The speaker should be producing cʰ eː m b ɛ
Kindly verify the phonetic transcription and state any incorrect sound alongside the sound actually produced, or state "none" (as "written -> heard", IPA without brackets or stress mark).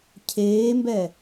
none